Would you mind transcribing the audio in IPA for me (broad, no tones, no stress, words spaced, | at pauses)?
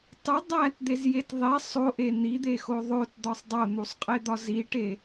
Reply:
tˤu dˤætd̪ezjet ðˤe sˤoʔe n̪id̪exo ðˤotd̪ɒsˤ dˤon̪usˤqʼed̪ɒ ziʈe